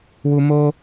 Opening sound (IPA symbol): w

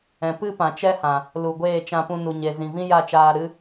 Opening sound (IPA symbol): ɛ̃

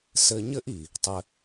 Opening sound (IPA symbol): s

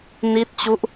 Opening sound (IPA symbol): n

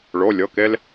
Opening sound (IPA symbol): ɭ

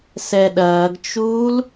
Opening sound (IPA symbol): s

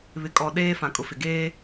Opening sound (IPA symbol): β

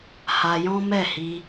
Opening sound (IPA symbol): h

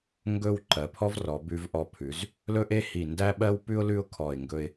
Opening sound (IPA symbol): ŋ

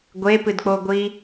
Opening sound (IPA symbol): ɡʷ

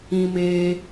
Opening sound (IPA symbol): ĩ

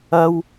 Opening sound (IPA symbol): ɐ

